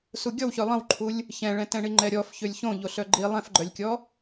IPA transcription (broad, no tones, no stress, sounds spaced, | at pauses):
s u ɡʲ ɔ w ç ø lˠ ə̃ w ǃʰ u lʲ | ç ɛ̃ ɭ ɛ̃ t ɛ̃ ɳ i ŋ͡ǃ ɛ ɾʲ ɔ f ç ø lʲ ç õ ʎ o ɬ œ ɡ͡ǃ i lˠ ɛ̃ f ɡ͡ǃ œ lʲ kʲ ɔ